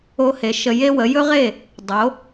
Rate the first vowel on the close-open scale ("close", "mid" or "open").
mid